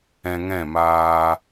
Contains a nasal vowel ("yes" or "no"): yes